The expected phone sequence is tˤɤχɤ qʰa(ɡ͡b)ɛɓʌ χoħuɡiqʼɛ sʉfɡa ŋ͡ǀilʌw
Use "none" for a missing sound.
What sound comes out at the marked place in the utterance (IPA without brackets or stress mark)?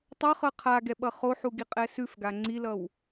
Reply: ɡ